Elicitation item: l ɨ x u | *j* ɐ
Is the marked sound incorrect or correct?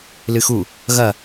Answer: incorrect